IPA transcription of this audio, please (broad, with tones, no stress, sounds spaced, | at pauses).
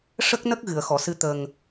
ʂ ə˦˥ k̚ n ə˦˥ k̚ ɣ ɨ˨˩˨ ə̯ x ɔ˨˩˨ s ɨ˧˥ t̪ ə˨˩ ŋ